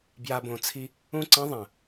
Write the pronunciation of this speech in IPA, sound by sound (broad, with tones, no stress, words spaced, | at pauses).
bja˧bõ˨t͡sʰi˦ | ũ˦˨ǀɐ̃˦ ðˤɐ̃˨